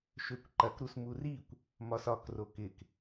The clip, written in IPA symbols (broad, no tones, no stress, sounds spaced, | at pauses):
ʃ ø kʷ ǃ ɐ k ɾ u s m u r i kʷ | m ɒ s ɒ k r o k ɪ k